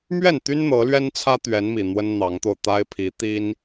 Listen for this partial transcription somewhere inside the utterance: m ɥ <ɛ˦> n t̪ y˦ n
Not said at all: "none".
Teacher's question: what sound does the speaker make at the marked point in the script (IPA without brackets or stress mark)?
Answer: ɛ˥˨